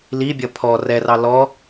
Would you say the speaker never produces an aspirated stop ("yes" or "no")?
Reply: no